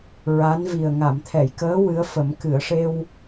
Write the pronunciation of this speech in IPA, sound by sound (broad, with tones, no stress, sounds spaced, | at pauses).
ɹ a˧˥ n v i˨˩ ə̯ ŋ a˨˩˨ m t̪ʰ ɛ˨˩˨ j k əː˧˥ w ɨ˧˥ ə̯ f ə˨˩˦ m k ɨ˨˩˨ ə̯ ʂ e˧ w